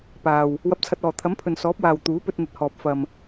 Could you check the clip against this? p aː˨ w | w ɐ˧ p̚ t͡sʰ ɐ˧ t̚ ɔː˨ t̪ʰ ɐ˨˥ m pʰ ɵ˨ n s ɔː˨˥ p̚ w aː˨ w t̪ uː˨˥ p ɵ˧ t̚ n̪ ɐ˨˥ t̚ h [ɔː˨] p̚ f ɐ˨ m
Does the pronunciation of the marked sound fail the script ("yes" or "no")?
no